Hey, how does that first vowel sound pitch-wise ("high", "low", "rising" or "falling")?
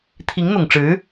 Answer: rising